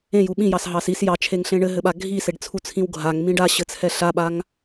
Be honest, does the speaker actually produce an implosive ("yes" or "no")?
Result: yes